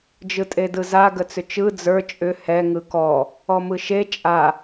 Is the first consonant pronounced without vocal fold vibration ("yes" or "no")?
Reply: no